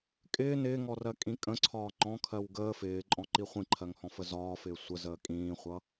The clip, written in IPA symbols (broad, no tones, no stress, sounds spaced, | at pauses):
kʼ ɪː n ɪː ŋ ɔ r ɜ kʼ ĩ kʼ ə̃ ǀʰ ɒː ŋ͡ǃ ɔ̃ kʰ ɜ w ɡ əː f ɪː ǃʼ ɔ̃ ǃ i χʷ ĩ ǃʰ ɜ ŋ h ɔ̃ f ə z ɒː f ɪː sʷ ə z əː kʼ ĩː χʷ ʌ